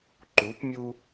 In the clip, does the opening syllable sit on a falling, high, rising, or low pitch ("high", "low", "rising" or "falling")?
rising